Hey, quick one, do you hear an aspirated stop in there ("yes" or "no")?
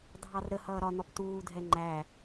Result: no